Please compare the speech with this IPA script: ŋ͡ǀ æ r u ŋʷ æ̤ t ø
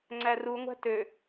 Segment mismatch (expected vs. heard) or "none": none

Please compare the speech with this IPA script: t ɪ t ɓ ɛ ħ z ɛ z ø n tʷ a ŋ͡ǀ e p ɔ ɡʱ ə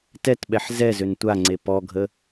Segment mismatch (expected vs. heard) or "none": ɪ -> ɛ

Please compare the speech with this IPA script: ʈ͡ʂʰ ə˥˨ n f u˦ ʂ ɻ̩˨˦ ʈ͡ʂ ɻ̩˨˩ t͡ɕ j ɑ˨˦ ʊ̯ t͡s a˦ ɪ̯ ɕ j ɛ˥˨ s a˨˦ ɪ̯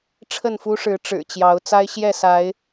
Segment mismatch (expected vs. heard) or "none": none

